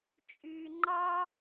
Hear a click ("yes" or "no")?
yes